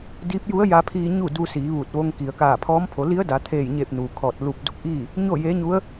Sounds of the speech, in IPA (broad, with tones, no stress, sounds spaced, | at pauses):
d iː˧˥ p̚ j u˧˥ ə̯ j a˧ pʰ iː˧ ɲ u˥˨ d u˧ s iː˩˧ ʋ u˧˩ t̚ ʋ o˧ ŋ k i˩ ə̯ k aː˧˩ pʰ ɔː˧˥ m pʰ o˩˧ l i˧˥ ə̯ d a˩˧ t̪ʰ eː˧˩ j ɲ e˧˩ p̚ n uː˩ kʰ ɔː˧˩ t̚ l u˧˩ p̚ d u˧˥ k̚ ʔ iː˥˨ | ɲ o˥˨ j eː˧˥ ɲ u˧˥ ə̯